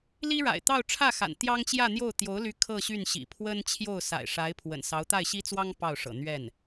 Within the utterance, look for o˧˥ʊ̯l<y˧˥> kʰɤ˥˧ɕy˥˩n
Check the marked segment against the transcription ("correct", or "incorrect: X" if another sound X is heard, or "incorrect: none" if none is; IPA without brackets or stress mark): correct